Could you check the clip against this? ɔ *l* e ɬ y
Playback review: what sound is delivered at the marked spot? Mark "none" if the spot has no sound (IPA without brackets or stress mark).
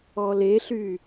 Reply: l